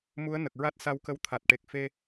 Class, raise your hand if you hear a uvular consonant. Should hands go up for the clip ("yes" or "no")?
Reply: no